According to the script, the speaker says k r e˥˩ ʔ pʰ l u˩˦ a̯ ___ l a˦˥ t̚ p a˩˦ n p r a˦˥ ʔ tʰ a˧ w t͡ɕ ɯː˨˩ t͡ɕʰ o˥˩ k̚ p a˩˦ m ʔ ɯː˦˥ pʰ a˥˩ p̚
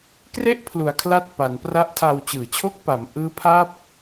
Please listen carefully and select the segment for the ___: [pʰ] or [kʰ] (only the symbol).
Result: kʰ